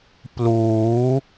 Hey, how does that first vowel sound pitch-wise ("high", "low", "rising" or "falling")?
rising